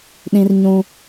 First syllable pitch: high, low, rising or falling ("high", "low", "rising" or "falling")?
high